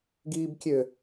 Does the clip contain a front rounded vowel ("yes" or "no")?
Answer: yes